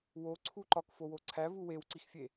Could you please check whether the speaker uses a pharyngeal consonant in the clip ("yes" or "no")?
no